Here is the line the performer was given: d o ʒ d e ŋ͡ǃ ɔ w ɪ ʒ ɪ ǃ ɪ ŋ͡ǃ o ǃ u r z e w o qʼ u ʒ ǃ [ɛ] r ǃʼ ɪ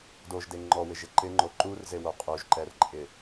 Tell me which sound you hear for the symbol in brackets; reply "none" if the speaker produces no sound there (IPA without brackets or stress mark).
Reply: ɛ